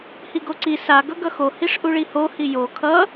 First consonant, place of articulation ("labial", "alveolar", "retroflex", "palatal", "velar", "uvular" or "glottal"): glottal